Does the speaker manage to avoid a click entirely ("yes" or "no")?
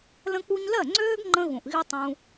no